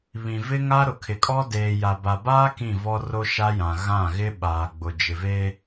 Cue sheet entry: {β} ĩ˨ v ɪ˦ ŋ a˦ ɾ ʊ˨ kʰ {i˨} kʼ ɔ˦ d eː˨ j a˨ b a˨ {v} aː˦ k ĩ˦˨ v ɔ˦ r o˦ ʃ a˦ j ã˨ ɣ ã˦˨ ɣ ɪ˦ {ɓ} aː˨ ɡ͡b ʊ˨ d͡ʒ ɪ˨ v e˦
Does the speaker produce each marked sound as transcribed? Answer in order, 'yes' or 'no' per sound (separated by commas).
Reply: yes, no, no, yes